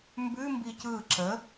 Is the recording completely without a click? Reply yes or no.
no